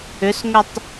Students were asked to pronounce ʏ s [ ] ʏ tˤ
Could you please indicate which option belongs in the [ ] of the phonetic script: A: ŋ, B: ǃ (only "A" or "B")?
A